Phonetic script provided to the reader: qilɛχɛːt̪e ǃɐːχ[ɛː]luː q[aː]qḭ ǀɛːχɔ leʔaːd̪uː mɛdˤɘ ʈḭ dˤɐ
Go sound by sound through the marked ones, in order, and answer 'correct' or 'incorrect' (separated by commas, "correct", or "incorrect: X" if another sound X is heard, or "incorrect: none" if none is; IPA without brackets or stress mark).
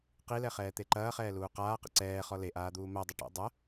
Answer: correct, correct